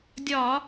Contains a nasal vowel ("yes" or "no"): no